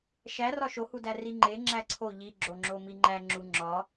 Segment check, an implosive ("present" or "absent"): absent